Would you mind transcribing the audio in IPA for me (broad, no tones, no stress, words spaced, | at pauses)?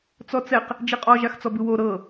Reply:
t͡sɔt͡sɛq | d͡ʒiqʼɔʒ axt͡sɔbɯwo ɾɤ